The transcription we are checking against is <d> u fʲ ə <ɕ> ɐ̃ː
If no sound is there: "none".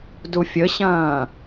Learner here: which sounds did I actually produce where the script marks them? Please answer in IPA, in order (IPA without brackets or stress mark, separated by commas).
d, ɕ